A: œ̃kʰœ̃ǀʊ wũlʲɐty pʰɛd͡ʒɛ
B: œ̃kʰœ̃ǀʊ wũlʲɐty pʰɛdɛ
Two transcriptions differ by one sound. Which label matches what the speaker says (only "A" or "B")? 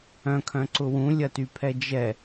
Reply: A